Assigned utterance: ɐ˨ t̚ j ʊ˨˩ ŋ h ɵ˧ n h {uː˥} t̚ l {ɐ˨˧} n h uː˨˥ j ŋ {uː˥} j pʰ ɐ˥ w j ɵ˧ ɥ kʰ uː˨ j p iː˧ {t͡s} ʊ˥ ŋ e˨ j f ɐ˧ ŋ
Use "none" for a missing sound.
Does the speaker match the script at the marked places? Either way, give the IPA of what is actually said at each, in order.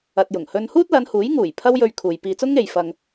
uː˥, ɐ˨˧, uː˨˩, t͡s

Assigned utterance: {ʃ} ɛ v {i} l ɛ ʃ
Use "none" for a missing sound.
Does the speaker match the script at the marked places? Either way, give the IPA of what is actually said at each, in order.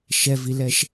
ʃ, i

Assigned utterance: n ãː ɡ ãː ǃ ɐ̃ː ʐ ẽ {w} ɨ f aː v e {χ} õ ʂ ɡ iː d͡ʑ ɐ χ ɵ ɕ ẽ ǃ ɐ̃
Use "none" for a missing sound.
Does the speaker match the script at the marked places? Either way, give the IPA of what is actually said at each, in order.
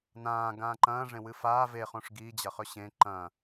w, χ

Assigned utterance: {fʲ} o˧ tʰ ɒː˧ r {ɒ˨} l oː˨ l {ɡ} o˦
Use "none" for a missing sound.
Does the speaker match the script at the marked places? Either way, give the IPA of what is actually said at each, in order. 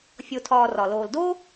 fʲ, ɒ˨, d

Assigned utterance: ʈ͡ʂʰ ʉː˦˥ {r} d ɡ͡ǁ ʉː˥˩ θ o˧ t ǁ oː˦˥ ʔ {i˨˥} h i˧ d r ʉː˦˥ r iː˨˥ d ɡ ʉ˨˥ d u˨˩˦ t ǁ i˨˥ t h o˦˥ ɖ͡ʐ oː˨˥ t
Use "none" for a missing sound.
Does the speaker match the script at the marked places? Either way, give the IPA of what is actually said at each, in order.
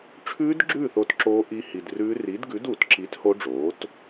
none, i˦˥

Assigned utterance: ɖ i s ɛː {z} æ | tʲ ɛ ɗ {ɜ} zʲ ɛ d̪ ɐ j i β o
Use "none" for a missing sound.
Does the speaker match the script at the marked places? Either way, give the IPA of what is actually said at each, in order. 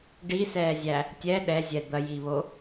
zʲ, ɛ

